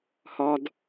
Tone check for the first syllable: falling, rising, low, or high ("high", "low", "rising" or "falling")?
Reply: high